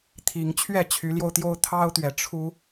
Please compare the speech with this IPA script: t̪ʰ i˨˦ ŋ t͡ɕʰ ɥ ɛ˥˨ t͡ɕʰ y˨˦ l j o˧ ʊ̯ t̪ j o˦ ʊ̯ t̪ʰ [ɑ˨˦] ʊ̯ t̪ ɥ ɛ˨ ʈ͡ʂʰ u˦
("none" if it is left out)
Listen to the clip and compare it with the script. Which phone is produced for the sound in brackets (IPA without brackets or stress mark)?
ɑ˦